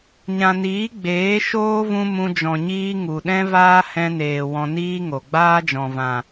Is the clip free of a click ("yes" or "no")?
yes